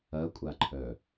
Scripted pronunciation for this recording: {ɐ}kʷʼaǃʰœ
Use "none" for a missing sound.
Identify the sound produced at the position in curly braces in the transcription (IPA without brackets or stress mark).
ɐ